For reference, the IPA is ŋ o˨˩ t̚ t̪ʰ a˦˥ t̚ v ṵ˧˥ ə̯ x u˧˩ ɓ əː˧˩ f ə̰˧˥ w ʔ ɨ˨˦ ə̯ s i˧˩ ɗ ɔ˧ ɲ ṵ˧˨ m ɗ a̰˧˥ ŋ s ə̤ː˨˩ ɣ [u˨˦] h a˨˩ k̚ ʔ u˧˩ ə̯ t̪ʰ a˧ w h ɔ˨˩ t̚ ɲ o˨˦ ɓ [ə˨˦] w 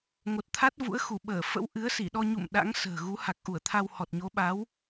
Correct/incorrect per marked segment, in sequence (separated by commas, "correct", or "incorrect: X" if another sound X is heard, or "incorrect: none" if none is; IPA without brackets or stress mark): correct, incorrect: a˨˦